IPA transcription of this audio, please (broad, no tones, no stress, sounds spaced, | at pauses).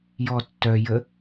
j ɔ tː œ j ə